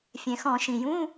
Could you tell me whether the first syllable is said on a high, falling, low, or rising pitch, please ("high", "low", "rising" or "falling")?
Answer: low